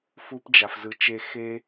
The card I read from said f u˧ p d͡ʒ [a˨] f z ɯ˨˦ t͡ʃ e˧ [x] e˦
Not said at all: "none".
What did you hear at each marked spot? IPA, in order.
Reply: a˨, x

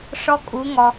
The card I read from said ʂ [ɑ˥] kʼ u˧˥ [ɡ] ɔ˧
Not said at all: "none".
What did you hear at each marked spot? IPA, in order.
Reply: ɔ˥, ŋ

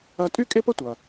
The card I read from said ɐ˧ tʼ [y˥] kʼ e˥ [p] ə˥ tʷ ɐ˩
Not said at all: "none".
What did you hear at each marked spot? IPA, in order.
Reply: y˥, p

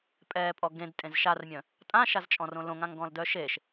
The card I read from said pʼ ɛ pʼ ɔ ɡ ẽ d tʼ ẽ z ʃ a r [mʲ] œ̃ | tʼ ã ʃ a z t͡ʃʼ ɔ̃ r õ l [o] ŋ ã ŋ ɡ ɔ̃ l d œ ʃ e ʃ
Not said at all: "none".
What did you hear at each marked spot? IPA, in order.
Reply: mʲ, õ

